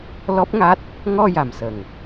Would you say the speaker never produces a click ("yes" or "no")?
yes